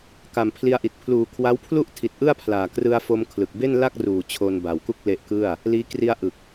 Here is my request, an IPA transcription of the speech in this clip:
ka˨˩mpʰli˧a̯ʔi˨˩t̚ pʰluː˨˩kʰwa˦˥wpʰlu˥˩ʔtʰi˨˩t̚ ʔɯ˥˩a̯pʰlaː˨˩krɯ˧a̯fo˧m kʰlɯ˨˩k̚ be˥˩nla˥˩k̚ruː˨˩ t͡ɕʰo˧nba˨˩wku˥˩k̚ le˦˥ʔkɯ˥˩a̯ | liː˦˥ kri˧a̯ʔɯ˨˩k̚

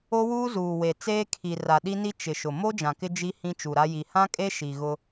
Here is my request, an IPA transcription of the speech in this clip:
o˦wuː˦zuː˨ we˨ t͡seː˦ kʰi˨ ra˨ɗi˦ni˦ t͡ʃɪ˨ʃʊ˨ mo˦ d͡ʒã˨kɪ˦ d͡ʒi˦ hĩ˦t͡ʃu˨ɾa˦ ji˨ hã˦kʼe˦ ʃi˨ɣʊ˦

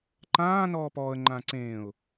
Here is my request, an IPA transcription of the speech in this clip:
ǃãː nɔːpɔːə̯ ŋ͡ǃãːǀẽːʊ̯

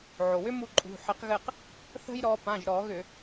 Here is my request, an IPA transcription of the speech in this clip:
ʕo˩wʏ˦ mu˦˨ǃʼṳ˩˧˩ ħɘ˨˦qɣɘ˦˨q | θə̤˦jɾɔ˨˦ pã˩˧˩ʒɾɔ˧˩˧ɣʏ˧˩˧

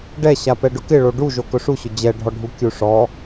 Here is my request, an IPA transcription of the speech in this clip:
ɖɛɕapɛ ɖʊkɪɭo ɖuʒo kʊʂuɕʊ d͡ʑɛɖʱɔɖʱu kʲuʂɔ

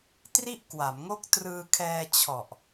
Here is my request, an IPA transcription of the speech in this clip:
tri˥˩ʔkwa˩˦mŋo˥˩k̚ trɯː˧kʰɛː˧ t͡ɕʰɔ˨˩ʔ

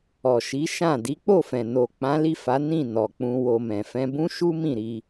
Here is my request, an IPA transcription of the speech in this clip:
ɔ˨ʃi˨˦ʃã˦˨ di˨˦k͡po˦˨fɛ̃˨ no˨ k͡pã˨˦li˦˨fa˨˦ nĩ˦˨ nɔ˨k͡pũ˧ wo˧mɛ̃˨ fɛ̃˧bũ˦ʃu˦ mĩ˦˨ɾi˧

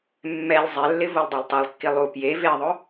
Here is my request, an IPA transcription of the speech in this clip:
mːɛlʲ zˤɛlːɪ volˠdˤoltˤolˠkːi lˠu pje veðˤʊ

